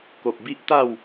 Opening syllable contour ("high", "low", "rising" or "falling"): low